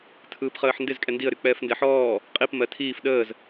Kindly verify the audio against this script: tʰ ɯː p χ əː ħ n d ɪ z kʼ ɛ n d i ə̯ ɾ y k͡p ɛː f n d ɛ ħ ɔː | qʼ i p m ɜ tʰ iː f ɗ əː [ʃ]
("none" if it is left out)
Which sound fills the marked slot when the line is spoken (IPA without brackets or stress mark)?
z